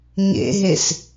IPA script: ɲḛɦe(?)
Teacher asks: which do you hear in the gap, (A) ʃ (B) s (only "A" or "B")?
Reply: B